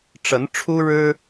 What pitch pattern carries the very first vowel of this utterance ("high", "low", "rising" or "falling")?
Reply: rising